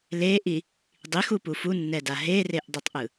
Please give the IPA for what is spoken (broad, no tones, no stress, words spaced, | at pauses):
leʔi | dˤixupu funːɛda ɦereʔdˤitˤʔɯ